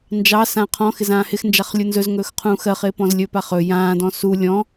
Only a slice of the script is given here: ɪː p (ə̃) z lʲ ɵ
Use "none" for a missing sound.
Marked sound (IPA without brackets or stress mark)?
ɔ̃